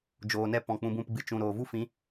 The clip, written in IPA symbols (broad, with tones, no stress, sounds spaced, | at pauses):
d͡ʒ oː˨ n ɛ˦ p ɔ̃˨ k͡p ũ˧ b ũ˦˨ p ɡ͡b ɨ˧ t͡ʃ ũ˨ ɾ oː˨ v u˦ f ĩ˨˦